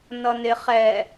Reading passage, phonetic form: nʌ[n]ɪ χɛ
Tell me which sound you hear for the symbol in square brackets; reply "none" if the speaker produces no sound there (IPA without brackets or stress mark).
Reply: n